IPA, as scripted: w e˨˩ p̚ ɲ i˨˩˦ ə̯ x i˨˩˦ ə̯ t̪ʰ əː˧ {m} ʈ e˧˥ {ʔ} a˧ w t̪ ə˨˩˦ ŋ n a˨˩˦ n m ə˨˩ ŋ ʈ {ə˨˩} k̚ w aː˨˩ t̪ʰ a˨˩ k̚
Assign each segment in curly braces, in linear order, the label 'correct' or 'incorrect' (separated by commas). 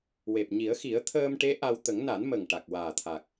correct, correct, incorrect